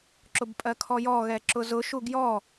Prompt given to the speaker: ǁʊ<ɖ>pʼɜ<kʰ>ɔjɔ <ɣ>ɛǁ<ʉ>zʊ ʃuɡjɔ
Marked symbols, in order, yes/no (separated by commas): no, yes, yes, no